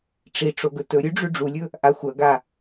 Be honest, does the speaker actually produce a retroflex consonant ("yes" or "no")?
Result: yes